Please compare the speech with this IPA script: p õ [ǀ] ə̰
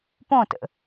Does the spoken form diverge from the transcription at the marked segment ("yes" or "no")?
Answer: yes